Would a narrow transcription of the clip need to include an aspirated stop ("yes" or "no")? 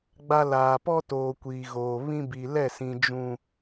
no